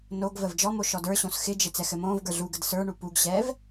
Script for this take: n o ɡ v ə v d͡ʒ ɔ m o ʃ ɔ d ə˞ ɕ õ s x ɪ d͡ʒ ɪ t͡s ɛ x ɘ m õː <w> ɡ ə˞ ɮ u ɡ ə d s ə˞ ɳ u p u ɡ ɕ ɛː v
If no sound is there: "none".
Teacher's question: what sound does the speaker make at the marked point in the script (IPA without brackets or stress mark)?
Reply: v